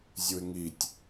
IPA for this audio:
zʲ u ɪ̯ ŋ i tʲ

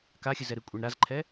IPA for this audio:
k a xʲ ɨ z ɛ ɾ ɨ kʷʼ ɛ ɳ ɾ a z ǃʰ ɛ

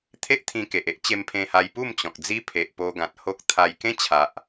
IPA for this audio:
t̪ʰ e˦ ʔ t̪ʰ ĩ˧ k e˨ ʔ e˦ ʔ t͡ɕ e˧ m pʰ ẽ˧ h a˧ j p u˥˧ m t͡ɕ ɔ̃˨ k̚ d͡z i˦ pʰ e˨ ʔ p o˧ ɡ ã˨ t̚ h o˦ k̚ t̪ʰ a˧ j k ẽ˦ t͡ɕʰ a˨ ʔ

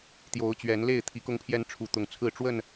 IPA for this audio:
t̪ j o˨˦ ʊ̯ t͡ɕ ɥ ɛ˨˦ n l e˥˨ ɪ̯ t̪ʰ i˨˦ k ʊ˦ ŋ pʰ j ɛ˦ n ʈ͡ʂʰ u˨˦ t̪ ʊ˨˦ ŋ t͡sʰ ɹ̩˥˨ ʈ͡ʂ w ə˥˨ n

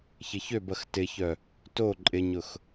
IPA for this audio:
ç ɪ ç ø b ɐ x t ɪ ç œ | t o ǃʼ ɪ ɲ ʊ x

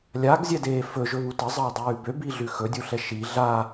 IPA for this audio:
lʲ a ɡ zʲ ɛ d eː f ɵ ʒ ɵ β u t ə zˤ əː dˤ ʉː b ø b i ɮ ʉ x ɵ dʲ u ɬ ɛ ʃ i ɮ a

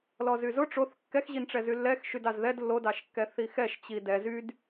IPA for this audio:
l ɔ z y z ʊ ʈ͡ʂ o θ kː ɛ x ʑ i n ʈ͡ʂ ɛ z y lː ɛ x ʃ y d ɑ z ð ɛ d lː o d ɑ ʃ kː ɛ θ i x ɛ ʃ t͡ɕ i d ɛ z y d

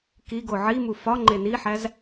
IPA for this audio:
k i ɡ o ʕ i m u f ɒ ŋ͡ǃ e n i ħ æ z

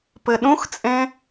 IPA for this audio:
p ɘ ɗ ũ x t͡sʼ ẽ

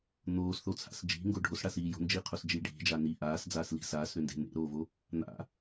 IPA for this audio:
n̪ oː s θ o t͡sʰ a̰ s d͡ʒ i̤ ŋ ɡ o ɖʱ o s ɽ a s iː j o̤ n d͡ʒ iː qʰ o s d͡ʒ iː ɖʱ i̤ d͡ʒ a n i ʔ aː s d͡z aː s l i̤ s aː s ɾ ʏ n d e̤ n ḛ ɾ oː v o | n̪ a̰

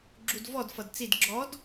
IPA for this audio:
ɡ͡ǁ u d v ɔ d f ʌ d t͡s i d ɡ͡ǁ ɔ d

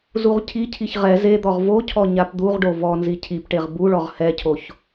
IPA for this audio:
z u ʁ cʰ i cʰ i ç ʁ ɛ z e d̪ ɔ ʁ v o cʰ ɔ ɲ a p d̪ u ʁ ɖ o v ɔ n z i cʰ i p ʈ e ʁ b u ɭ ɔ ʁ h ɛ cʰ o ç

